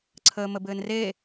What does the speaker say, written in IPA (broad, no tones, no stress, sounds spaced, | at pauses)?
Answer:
ǀʰ əː m ə b ɘː n r e